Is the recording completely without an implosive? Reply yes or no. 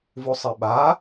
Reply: no